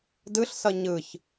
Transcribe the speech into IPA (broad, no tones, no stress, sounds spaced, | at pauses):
d ɯ ɬ s ʌ ɲ ɯ ç